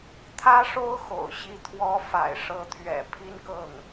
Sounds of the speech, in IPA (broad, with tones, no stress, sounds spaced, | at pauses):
t̪ʰ ä˥ ʂ o˥ ʊ̯ x o̰˨˩ ʊ̯ ɕ i˧˥ t̪ʰ w ɔ˧˥ f a̰˨˩ ɪ̯ ʂ ɤ˧˥ t̪ʰ ɥ ɛ̰˨˩ pʰ i˥ n k ɤ˥˩ ŋ